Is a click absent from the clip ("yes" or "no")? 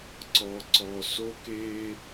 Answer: no